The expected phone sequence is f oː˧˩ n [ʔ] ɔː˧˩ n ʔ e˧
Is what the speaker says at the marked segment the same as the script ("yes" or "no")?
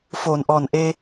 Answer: yes